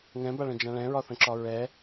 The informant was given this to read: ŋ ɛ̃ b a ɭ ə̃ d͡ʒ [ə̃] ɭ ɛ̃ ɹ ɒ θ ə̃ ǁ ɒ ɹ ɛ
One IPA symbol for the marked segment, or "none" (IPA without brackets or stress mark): ã